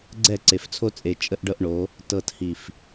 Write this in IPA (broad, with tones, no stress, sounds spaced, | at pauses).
ɡ͡ǀ ɛ˦˨ ǀ e˨ f t͡sʰ o˦ t͡sʼ e˨ t͡ʃʼ ə˦ ʔ ɖ ɤ˦ ʔ ɳ o˨˦ | t ɤ˨ t h i˨ f